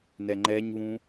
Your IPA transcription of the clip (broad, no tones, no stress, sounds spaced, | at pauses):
n ɛ ŋ͡ǃ ɛ ɲ β ũ